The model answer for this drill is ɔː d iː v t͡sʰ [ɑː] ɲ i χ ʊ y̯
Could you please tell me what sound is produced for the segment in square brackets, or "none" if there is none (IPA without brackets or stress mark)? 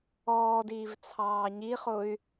ɑː